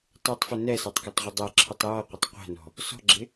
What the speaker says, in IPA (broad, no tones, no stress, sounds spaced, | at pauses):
tˤ u tˤ f ʊ n ɛ s ɑ tˤ k ɔ tˤ ʁʷ ə dˤ ɛ ǁʰ ʊ tˤ j ɔ qʷ ɪ tˤ qʷ æ̤ n ɔ̤ | s ɔ̤ ɡ͡ǁ ɪ